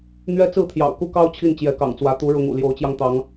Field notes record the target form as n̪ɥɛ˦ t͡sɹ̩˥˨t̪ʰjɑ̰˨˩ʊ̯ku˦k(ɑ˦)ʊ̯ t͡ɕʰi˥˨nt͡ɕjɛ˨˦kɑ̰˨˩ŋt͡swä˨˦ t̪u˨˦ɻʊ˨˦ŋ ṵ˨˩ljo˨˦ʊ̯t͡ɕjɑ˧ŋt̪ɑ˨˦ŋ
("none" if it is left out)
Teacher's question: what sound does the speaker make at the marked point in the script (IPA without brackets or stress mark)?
ɑ˦